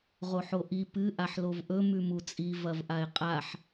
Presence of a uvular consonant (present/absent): present